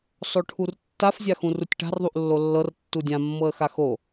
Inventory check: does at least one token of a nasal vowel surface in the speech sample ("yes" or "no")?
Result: yes